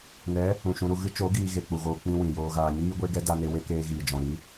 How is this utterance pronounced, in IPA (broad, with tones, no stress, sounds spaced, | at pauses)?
n ɛ˨˦ | ũ˨ ʃ ũ˧ ɾ u˧ ɣ ɨ˦ t͡ʃ o˨˦ ɡ iː˦ ɣ e˧ k͡p u˨ ɣ oː˧ k͡p ĩ˧ w ĩ˨ j oː˧ ɣ aː˧ ɲ iː˦ ɡʷ e˦ ɡ ɛ˦ d a˧ n e˧ w e˦ k eː˧ ɣ iː˨ d͡ʒ ɔ̃˨ ɾ i˦